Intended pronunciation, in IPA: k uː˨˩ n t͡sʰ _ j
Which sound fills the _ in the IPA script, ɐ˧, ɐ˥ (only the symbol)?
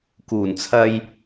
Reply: ɐ˧